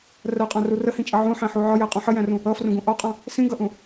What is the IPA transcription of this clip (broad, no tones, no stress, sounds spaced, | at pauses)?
r ɜ qʼ ɑ̃ r u r ə h ĩ t͡ʃʼ ʌ ʕ ũ ħ æ̃ ħ u ʕ ɒ j æ qʼ ũ ħ ə j æ̃ r ũ | ʌ f r ũ ɡ ũ ʔ ɒ qʼ ɑ̃ | s ĩ ɡ ʌ ʔ ũ